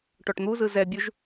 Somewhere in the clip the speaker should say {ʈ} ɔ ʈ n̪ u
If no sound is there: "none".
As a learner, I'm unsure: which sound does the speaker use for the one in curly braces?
ʈ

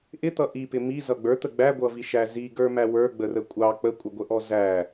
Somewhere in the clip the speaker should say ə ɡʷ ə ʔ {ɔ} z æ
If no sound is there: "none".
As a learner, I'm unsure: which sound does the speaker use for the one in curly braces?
ɔ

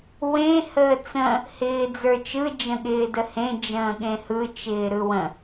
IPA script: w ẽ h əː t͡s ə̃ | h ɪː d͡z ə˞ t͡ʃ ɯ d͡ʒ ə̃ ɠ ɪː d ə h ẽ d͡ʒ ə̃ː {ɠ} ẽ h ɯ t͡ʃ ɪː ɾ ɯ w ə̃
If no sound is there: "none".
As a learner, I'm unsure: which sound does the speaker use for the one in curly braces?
ɠ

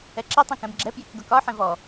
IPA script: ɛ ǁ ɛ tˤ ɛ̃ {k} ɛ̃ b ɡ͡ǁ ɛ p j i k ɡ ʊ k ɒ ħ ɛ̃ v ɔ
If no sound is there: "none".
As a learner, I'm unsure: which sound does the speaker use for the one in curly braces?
k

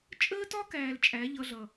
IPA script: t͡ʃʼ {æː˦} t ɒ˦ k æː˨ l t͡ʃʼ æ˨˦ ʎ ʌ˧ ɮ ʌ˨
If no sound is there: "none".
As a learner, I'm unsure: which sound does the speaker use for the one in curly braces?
əː˦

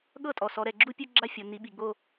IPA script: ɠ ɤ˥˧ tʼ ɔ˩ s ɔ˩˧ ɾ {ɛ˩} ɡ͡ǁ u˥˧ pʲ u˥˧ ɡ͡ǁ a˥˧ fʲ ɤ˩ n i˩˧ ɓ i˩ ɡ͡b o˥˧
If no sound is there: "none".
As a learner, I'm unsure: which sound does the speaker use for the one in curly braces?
ɛ˩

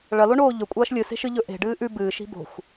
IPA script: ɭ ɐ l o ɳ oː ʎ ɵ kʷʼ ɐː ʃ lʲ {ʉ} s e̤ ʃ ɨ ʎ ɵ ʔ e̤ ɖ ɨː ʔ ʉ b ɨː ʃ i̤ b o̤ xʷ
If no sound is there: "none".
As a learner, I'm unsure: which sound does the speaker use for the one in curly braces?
ɨ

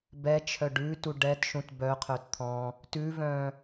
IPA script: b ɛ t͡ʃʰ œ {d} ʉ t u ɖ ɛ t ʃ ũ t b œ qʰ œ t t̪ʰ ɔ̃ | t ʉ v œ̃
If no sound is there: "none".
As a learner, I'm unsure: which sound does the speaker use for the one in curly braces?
ɖ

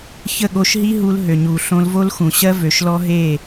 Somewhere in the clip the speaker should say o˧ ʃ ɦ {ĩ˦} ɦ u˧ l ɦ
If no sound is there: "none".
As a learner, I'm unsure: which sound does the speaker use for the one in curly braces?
i˦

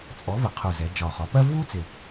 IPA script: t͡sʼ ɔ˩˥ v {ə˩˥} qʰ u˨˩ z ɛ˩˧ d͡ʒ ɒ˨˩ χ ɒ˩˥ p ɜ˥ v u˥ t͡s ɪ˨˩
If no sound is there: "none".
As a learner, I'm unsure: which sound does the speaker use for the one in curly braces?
ə˩˧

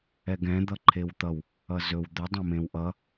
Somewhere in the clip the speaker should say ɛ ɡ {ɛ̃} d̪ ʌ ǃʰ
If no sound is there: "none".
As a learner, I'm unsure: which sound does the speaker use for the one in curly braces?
ɛ̃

